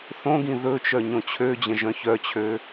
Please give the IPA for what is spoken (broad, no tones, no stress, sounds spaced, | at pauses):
θ õ ɡ ĩ ð ɵ t͡ʃ œ ɲ õ t͡ɕʰ ø d͡ʑ ə̃ ʒ œ̃ ç œ t͡ɕʰ ø